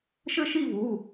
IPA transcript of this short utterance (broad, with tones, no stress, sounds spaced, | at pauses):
ʃ ɘ˥˧ ʃ i˥˧ v u˩˧˩